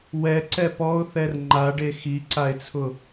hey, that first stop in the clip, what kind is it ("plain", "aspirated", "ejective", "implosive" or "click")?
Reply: click